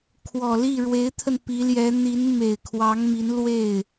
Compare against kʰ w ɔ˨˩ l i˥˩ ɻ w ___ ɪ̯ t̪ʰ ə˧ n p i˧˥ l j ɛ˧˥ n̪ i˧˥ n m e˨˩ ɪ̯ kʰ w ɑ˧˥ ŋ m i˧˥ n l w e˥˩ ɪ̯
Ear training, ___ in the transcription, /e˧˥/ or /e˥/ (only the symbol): e˧˥